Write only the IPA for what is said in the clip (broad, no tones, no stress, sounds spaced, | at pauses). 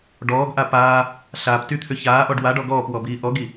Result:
ɖ ɔː ɡ ʔ a p aː | ɬ aː p t y t̪ʰ ʏ ç aː ʔ ɔ ɖ w a ɖ ɔ ɡ ɔː p w ɔ b iː ʔ ɔ ɡ i